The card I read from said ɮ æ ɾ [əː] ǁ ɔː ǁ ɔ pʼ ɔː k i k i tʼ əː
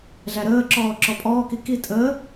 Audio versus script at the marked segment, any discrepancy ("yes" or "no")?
no